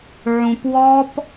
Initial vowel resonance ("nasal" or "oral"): nasal